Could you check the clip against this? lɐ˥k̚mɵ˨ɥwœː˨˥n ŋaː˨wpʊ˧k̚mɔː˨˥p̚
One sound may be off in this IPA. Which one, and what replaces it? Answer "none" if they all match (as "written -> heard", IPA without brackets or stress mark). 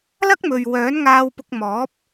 aː˨ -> aː˧